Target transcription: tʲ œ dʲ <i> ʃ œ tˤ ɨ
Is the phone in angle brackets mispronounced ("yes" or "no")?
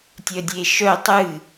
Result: yes